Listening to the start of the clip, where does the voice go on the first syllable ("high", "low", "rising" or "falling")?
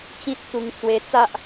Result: high